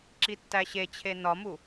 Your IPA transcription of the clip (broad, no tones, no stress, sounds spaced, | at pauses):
ǁ i tː æ ɕ e t͡ɕʰ e n ɒ m u